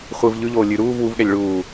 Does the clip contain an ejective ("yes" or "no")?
no